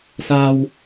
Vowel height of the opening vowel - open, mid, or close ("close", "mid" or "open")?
open